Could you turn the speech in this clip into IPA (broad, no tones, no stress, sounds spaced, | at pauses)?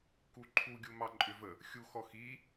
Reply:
k u ǃʰ u ɡʲ u m ɑ ǃʼ ʏ v ə | xʲ u x ɔ x i